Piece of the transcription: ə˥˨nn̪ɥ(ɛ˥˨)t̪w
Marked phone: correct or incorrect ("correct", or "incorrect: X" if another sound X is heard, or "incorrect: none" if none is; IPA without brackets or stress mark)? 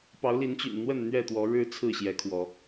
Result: correct